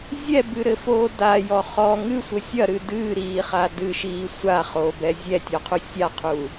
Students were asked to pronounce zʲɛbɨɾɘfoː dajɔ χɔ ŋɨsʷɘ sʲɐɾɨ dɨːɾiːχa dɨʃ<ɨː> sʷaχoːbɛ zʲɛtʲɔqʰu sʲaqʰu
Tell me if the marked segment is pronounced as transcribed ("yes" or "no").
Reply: no